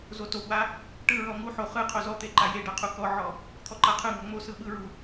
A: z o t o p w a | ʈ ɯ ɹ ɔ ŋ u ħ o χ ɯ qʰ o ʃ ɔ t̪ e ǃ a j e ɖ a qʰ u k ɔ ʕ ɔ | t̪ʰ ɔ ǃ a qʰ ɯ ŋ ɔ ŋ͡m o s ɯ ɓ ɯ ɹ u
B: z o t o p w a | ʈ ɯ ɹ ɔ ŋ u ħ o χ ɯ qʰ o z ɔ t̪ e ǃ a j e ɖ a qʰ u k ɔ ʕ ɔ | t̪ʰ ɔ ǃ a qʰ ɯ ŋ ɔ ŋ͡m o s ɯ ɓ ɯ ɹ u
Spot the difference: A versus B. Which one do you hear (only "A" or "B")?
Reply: B